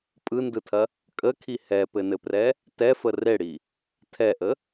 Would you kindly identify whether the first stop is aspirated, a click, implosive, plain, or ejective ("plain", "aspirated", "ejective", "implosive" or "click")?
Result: ejective